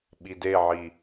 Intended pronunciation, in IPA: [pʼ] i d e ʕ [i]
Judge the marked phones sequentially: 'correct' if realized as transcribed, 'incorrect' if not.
incorrect: ɓ, correct

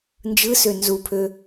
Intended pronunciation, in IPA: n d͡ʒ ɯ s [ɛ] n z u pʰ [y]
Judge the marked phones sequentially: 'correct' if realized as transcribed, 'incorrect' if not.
incorrect: ø, incorrect: ø

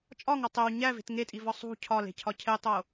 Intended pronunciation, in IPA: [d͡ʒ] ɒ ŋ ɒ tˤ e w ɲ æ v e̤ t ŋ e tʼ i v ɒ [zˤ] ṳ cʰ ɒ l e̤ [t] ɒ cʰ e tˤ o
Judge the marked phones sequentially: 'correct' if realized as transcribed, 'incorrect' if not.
incorrect: t͡ʃʼ, incorrect: sˤ, incorrect: cʰ

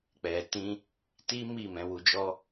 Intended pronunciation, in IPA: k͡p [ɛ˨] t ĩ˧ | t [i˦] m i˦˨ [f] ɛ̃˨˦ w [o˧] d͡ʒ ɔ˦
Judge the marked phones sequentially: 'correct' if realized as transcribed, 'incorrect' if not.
correct, correct, incorrect: m, incorrect: u˧

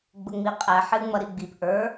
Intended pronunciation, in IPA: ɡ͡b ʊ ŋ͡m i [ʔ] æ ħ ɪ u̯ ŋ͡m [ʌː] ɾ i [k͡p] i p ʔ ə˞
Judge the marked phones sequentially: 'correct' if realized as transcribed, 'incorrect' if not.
incorrect: qʼ, incorrect: ʌ, incorrect: ɡ͡b

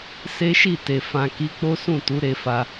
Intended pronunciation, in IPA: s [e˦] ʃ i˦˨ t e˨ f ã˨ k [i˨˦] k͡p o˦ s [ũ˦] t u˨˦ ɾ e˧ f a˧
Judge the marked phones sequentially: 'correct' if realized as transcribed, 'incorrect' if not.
correct, correct, incorrect: ũ˦˨

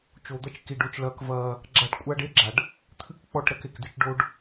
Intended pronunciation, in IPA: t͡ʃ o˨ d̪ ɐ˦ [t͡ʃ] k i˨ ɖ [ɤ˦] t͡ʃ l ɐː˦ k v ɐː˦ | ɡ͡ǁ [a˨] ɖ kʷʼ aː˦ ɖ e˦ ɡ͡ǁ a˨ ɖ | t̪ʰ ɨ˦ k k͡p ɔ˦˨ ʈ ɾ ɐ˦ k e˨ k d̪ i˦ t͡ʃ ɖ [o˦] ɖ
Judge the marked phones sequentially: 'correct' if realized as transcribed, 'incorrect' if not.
correct, incorrect: o˦, incorrect: a˦, correct

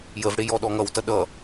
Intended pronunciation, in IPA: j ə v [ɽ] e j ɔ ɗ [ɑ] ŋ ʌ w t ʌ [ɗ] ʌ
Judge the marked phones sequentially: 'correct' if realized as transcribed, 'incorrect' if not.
correct, incorrect: ɔ, correct

